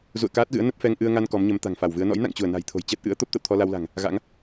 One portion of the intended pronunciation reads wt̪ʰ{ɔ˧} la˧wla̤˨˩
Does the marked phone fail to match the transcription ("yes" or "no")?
no